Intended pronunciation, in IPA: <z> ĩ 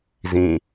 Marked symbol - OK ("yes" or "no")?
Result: yes